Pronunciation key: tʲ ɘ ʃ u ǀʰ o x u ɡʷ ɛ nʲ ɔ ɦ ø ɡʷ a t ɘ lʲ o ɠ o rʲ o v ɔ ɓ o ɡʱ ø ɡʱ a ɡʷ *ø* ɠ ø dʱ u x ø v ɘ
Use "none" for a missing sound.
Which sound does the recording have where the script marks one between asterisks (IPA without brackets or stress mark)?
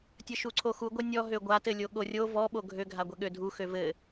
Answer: ɛ